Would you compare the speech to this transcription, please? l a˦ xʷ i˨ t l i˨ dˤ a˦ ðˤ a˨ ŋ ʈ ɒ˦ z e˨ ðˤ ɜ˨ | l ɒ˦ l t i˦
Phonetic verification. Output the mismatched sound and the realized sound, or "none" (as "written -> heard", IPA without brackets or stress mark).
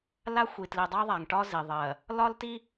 e˨ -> i˨